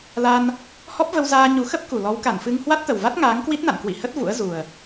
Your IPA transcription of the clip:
l a˧ n | h ɔ˦˥ p̚ v ə˧ w z aː˧ ɲ u˨˦ x ə˦˥ p̚ k u˨˩ l ɔ˨˦ w k a˧˩ n f ɨ˧ ŋ h w a˦˥ t̚ t̪ ə˨˩ w v a˦˥ t̚ ŋ aː˨˦ ŋ k w i˦˥ t̚ n a̰˧˨ n k w ḭ˧˨ h ə˦˥ t̚ v ṵ˧˥ ə̯ z u˨˩ ə̯

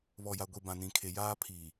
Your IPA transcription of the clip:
β ɔ˨ j a˨ ɡʷ i˨ b ã˨ n ĩ˨ kʰ e˨ j aː˦ pʰ iː˨

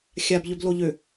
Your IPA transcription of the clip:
xʲ a b ʎ ø b l o ʎ ø

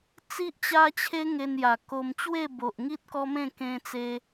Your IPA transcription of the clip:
t͡s i˦ ʔ t͡ɕ a˦ t͡ɕʰ e˦ ŋ e˧ n j a˨˩ k o˧ m t͡ɕ w e˥˧ b o˨ ʔ ŋ i˦ t̚ k ɔ˦ m ẽ˥˧ k ẽ˧ t͡s e˧

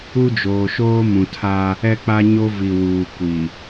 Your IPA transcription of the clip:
u˦ d͡ʒ oː˨ ʃ oː˦ m ũ˨ tʰ a˦ | ɛ˦ k͡p a˦ ɲ o˦ v i˨ w uː˨ kʷ i˨

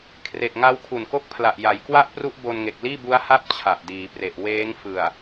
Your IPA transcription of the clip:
kʰ r e˨˩ k̚ ŋ a˦˥ w kʰ u˨˩ n k o˥˩ k̚ pʰ l a˨˩ ʔ j a˩˦ j k w a˥˩ ʔ p r u˥˩ ʔ b o˧ n ŋ e˨˩ k̚ l iː˥˩ b u˦˥ a̯ h a˥˩ p̚ t͡ɕʰ a˨˩ ʔ d iː˩˦ p r e˨˩ ʔ w eː˦˥ ŋ f ɯ˨˩ a̯

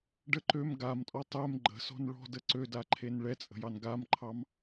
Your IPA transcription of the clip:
ɖ ə ǃ ø m ɡ a m tʼ ɔ tˤ ɛ m ɡ͡ǃ ə̤ s ɔ̤ n ɭ ɔ̤ d ə ǀ ø d a ǃʰ e n ɭ ɛ t͡sʼ ə̤ j ɑ n ɡ a m ǃʰ ɑ m

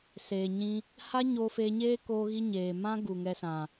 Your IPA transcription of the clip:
s eː˨ ɲ ĩ˧ | h a˦ ɲ oː˧ f eː˧ ɲ eː˦ k oː˦ ɣ i˦ ɲ eː˨ m ã˦ ɡ u˨ ŋ ɛ˧ s ã˨

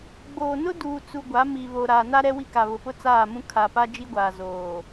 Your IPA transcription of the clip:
ɡ͡b oː˨ n ʊ˦ d uː˨ t͡s u˨ ɡʷ a˨˦ m i˨ β o˨ ɾ a˨ n a˦ ɾ ɛ˦ w i˦ k a˨ β ʊ˨ p ʊ˦ t͡s aː˦˨ m ũ˦ kʰ a˨ p a˦ d͡ʒ i˦ ɡʷ aː˨ z oː˨

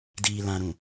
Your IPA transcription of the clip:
d iː˨ l ã˨ ɾ ũ˨

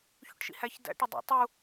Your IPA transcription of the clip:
ç ṵ ʈ ʃ ḭ h æ ç d æ̰ ʈ ɪ dˤ ḭ tˤ u

